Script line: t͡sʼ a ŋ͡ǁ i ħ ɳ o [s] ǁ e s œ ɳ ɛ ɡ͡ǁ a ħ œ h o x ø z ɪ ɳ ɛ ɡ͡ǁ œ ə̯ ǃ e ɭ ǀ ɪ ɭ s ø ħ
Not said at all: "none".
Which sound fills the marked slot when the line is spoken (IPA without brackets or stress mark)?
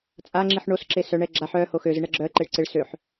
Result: s